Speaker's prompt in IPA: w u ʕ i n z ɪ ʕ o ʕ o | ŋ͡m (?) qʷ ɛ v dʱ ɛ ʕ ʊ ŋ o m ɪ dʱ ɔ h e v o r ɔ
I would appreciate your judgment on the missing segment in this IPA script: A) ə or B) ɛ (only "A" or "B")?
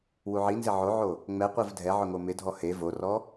B